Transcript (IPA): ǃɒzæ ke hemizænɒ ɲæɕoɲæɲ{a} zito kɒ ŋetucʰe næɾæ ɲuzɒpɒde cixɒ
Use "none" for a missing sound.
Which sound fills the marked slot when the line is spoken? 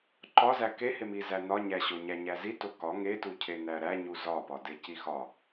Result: æ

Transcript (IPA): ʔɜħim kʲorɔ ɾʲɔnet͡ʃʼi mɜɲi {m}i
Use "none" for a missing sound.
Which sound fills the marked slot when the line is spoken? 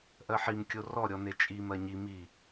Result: m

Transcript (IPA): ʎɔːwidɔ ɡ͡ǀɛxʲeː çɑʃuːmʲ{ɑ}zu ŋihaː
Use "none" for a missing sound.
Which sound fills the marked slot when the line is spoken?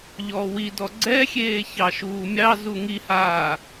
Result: ɑ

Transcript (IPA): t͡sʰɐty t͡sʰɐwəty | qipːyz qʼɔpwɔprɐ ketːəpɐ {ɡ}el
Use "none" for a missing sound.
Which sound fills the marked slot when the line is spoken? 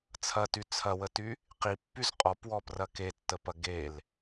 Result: ɡ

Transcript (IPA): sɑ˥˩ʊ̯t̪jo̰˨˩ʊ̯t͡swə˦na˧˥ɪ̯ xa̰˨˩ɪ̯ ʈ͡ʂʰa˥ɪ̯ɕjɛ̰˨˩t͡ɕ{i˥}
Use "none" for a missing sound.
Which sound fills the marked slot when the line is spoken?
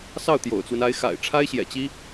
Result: i˥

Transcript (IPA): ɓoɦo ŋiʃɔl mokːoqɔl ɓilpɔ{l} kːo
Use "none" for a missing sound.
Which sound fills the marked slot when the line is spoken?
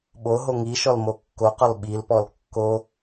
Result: l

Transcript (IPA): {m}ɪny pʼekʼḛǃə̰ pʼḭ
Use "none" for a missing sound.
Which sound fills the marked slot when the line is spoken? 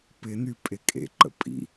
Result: p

